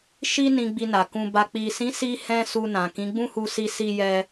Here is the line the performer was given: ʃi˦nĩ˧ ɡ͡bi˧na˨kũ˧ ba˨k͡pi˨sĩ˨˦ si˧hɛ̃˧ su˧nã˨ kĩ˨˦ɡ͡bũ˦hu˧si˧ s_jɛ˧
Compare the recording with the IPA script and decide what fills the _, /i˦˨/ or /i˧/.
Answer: i˧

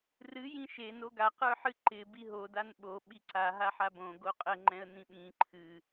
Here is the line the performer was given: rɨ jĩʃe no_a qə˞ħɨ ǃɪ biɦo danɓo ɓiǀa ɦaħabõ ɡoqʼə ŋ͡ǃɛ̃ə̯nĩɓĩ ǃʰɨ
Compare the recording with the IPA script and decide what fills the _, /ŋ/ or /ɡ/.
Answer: ɡ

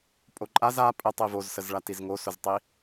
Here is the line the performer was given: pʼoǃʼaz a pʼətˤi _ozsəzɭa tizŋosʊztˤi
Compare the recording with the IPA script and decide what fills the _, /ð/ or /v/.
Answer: v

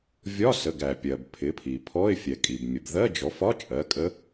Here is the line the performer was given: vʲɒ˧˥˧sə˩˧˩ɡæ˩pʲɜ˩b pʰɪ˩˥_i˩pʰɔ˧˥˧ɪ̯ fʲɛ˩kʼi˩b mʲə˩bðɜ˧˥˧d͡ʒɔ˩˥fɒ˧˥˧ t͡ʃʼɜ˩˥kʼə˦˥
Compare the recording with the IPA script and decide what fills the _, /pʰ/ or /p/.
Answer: pʰ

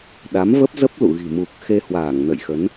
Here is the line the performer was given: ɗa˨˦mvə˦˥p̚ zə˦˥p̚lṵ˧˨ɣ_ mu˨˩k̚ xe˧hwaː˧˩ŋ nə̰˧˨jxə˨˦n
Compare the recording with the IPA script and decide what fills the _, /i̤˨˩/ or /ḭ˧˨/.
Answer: i̤˨˩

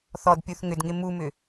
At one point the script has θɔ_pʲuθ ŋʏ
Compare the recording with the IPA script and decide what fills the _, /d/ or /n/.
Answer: d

